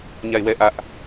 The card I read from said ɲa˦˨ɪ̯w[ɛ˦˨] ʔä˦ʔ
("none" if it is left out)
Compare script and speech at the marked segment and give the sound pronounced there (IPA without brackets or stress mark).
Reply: ɛ˦˨